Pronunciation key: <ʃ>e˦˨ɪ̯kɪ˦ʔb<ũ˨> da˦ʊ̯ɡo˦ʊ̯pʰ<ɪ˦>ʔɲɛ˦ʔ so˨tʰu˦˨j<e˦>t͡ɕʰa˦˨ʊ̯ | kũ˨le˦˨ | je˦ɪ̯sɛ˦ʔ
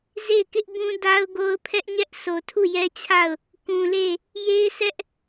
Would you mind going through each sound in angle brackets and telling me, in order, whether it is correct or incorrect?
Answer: incorrect, incorrect, incorrect, incorrect

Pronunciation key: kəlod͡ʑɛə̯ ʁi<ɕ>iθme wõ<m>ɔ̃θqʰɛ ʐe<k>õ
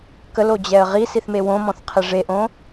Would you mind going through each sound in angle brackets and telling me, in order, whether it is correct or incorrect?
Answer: incorrect, correct, incorrect

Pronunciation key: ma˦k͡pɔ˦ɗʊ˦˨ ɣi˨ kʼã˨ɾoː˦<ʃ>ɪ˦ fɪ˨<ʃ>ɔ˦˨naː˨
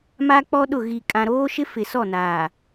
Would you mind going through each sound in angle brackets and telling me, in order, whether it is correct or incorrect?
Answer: correct, incorrect

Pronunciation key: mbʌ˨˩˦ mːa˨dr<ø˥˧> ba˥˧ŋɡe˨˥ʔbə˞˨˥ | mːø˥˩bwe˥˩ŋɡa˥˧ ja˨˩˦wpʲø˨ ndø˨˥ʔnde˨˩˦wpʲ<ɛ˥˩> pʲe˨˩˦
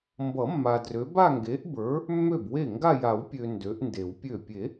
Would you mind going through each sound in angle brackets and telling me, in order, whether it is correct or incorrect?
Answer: incorrect, incorrect

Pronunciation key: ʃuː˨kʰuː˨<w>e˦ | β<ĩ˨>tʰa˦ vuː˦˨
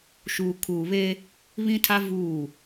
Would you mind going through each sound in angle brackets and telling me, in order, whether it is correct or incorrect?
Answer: incorrect, incorrect

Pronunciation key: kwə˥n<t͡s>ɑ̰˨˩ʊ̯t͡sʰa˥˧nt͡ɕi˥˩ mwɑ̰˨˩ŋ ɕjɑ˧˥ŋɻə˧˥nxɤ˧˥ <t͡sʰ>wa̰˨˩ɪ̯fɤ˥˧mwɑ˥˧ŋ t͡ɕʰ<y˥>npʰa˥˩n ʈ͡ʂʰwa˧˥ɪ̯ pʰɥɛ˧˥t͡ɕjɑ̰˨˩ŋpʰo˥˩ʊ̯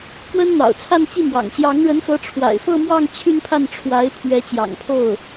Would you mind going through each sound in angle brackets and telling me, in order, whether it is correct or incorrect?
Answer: incorrect, incorrect, incorrect

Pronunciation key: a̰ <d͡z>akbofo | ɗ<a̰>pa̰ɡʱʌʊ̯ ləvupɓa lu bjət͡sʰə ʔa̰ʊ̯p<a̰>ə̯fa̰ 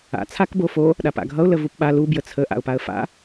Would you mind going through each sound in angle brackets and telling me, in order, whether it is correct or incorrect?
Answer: incorrect, incorrect, incorrect

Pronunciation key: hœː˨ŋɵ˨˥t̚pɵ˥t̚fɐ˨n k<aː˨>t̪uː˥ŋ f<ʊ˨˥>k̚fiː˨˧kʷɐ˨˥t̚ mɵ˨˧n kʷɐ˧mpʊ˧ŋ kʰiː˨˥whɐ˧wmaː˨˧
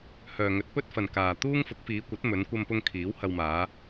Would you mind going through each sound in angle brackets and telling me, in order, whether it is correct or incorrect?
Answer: correct, correct

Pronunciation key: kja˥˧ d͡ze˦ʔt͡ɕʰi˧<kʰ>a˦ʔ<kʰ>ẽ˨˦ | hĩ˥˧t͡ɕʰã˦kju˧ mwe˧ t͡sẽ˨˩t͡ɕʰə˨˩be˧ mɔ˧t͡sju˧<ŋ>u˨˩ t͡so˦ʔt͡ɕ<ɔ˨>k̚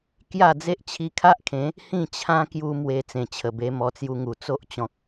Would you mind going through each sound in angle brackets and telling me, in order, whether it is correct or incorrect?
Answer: correct, correct, correct, incorrect

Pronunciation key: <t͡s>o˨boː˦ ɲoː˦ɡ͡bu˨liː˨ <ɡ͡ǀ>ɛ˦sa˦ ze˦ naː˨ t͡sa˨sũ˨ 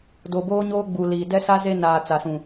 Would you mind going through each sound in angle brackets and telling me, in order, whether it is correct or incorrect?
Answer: incorrect, incorrect

